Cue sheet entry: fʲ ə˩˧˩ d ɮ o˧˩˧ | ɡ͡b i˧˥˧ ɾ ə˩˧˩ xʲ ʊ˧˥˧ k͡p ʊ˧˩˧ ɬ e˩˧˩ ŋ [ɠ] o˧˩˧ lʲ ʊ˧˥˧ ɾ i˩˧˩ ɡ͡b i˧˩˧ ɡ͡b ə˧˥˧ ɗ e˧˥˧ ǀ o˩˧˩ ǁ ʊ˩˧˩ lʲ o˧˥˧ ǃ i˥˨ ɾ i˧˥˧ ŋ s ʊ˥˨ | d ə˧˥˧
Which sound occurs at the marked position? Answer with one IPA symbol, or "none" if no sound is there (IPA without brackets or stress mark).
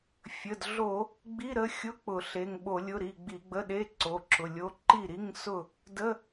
ɓ